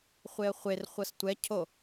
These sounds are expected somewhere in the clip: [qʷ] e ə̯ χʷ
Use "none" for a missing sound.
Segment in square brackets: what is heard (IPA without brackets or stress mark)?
χʷ